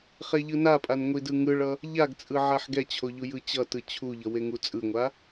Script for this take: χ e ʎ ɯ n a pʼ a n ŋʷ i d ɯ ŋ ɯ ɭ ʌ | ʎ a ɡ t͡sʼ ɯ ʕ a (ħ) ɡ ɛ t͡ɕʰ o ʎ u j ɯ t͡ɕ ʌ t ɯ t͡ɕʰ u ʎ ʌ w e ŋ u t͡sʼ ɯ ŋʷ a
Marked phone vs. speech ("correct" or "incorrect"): correct